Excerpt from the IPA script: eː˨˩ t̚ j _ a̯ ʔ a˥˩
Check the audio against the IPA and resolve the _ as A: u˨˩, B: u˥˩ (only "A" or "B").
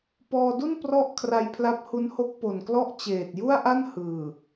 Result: B